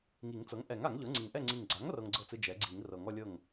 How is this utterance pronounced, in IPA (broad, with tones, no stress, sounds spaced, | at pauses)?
ŋ i˨˩˦ ŋ t͡s ɤ˩˥ ŋ ʔ ɛ˨˩˦ ŋ a˨˩˦ ŋ ʎ ɤ˩˥ ŋ͡ǀ i˨˩ ŋ ʔ ɛ˥˩ ŋ͡ǀ i˨˩ ŋ ɡ͡ǀ a˩˥ ŋ r ɤ˦ ŋ ɡ͡ǀ ɤ˥˩ t͡s ɯ˦ d͡ʒ ɛ˩˥ ɡ͡ǀ i˨˩˦ ŋ r ɤ˨˩˦ ŋ ɔ˦ lʲ ɤ˥˩ ŋ